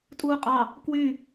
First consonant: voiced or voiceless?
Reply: voiceless